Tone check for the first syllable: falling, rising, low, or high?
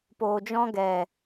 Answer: low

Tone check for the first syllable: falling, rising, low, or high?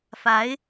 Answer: rising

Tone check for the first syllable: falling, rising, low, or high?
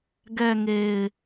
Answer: low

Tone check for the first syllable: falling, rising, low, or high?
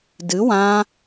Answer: rising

